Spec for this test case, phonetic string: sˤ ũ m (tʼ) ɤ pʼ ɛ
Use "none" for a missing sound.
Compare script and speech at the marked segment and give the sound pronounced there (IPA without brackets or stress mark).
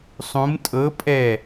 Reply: tʼ